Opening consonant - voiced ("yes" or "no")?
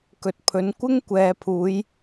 no